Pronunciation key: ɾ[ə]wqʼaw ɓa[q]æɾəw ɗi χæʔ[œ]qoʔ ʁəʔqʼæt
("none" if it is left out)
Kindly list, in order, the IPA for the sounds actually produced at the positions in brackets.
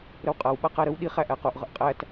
ə, q, æ

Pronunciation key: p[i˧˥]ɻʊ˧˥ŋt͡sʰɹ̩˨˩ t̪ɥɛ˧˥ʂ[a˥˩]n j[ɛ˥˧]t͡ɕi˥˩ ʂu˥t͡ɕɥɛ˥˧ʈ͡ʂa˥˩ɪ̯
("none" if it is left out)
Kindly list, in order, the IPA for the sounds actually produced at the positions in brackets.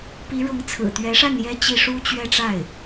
i˧˥, a˥˩, ɛ˥

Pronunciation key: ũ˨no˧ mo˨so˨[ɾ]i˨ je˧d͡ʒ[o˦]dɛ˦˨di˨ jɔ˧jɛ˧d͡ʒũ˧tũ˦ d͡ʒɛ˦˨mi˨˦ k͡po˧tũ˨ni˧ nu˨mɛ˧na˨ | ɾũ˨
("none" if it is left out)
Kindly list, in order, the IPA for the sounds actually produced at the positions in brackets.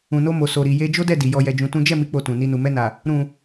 ɾ, o˦

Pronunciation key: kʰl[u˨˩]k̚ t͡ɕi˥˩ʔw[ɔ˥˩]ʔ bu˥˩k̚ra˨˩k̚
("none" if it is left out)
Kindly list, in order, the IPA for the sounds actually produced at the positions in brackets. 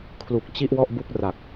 u˨˩, ɔ˥˩

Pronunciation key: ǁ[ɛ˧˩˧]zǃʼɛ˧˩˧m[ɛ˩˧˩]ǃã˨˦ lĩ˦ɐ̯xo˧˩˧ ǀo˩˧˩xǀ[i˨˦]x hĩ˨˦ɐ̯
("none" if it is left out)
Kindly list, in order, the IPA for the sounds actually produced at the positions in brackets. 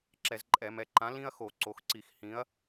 ɛ˧˩˧, ɛ˩˧˩, i˧˩˧

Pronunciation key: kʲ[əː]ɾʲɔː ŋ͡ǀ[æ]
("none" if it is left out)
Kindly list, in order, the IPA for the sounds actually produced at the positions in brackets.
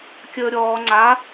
əː, a

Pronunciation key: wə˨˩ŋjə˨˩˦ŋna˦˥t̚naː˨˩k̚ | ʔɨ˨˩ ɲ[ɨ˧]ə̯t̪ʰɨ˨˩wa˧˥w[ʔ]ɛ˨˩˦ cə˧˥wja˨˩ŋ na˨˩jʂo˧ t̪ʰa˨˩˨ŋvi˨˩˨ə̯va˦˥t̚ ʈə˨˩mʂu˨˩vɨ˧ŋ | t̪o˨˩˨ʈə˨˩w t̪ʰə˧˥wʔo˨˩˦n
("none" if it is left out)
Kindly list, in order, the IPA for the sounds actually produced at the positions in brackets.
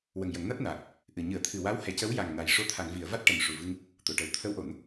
ɨ˨˩˦, h

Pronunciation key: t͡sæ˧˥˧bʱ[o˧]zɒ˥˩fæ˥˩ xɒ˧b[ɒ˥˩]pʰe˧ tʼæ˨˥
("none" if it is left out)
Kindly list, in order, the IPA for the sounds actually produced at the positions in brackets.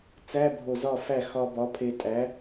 o˧˩, ɒ˨˥

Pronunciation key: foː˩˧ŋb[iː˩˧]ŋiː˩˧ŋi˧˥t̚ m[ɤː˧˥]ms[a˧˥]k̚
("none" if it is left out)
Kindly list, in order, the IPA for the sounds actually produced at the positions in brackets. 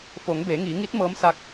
eː˩˧, ɤː˧˥, a˧˥

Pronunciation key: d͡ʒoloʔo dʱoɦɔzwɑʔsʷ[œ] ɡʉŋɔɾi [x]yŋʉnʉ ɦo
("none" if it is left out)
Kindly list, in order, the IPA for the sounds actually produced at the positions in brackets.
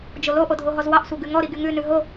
œ, ɡ

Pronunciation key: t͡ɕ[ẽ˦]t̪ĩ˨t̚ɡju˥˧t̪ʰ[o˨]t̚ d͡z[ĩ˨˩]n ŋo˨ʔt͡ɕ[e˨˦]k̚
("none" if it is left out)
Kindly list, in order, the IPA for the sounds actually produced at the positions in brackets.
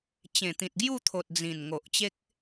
ẽ˨˩, o˨, ĩ˨˩, e˦

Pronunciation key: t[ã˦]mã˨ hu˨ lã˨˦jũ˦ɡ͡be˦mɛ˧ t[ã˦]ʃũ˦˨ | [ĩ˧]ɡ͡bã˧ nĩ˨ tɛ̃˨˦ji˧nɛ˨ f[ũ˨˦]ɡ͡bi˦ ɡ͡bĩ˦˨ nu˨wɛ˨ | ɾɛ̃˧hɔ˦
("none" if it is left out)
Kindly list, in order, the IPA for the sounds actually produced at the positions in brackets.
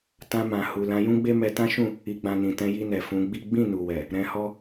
ã˧, ã˦, i˧, ũ˨˦

